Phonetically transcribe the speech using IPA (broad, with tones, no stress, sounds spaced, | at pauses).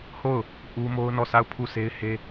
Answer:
h o˦˨ ʊ̯ | ʔ u˦ m o˦ ʊ̯ n ɔ˦˨ s a˦˨ ʊ̯ pʰ u˦˨ s e˦ ɪ̯ h e˦